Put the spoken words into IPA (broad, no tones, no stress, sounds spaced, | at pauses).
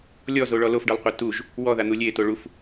lʲ ɔ z o ɭ ɔ l o f ɖ ɤ lˠ qʷ e t u ʒ | w ɔ ð a n̪ u lʲ e t o ɭ u f